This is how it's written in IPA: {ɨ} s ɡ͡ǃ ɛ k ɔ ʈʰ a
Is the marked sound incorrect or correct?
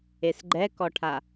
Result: incorrect